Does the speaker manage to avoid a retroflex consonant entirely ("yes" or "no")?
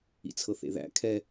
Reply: yes